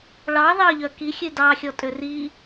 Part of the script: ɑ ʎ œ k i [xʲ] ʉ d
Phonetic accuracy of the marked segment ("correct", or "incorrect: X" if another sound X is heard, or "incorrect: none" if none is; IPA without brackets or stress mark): correct